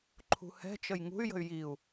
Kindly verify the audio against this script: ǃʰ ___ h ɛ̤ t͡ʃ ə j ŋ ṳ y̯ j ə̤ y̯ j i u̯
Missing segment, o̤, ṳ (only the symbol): ṳ